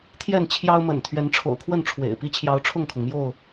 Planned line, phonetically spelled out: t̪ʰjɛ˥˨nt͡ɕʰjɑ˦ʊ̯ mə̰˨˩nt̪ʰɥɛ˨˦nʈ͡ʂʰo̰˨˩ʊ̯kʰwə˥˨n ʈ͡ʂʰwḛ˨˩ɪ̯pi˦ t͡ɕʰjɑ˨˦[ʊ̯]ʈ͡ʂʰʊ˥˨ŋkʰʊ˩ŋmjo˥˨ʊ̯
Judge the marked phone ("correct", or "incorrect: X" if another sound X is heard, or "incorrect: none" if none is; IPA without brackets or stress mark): correct